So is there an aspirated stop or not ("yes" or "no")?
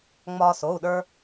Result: no